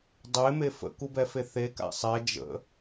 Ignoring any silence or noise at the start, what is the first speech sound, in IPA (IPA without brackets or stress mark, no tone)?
dˤ